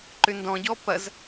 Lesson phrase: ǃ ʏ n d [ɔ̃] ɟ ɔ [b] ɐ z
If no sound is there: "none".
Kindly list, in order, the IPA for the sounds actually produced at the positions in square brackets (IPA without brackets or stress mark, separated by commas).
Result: ɔ̃, p